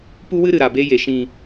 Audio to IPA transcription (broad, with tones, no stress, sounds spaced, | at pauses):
p u˦ w ɨ˦ ɾ ɨ˨ ɾ a˨ b e˧ j e˨ ʃ ĩ˨